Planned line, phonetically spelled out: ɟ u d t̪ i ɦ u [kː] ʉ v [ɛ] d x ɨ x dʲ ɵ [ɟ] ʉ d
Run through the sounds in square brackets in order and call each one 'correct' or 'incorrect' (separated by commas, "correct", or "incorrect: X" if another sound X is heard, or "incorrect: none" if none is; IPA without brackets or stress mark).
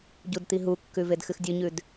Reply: correct, incorrect: e, incorrect: ɲ